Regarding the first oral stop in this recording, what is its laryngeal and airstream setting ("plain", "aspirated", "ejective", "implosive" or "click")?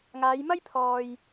aspirated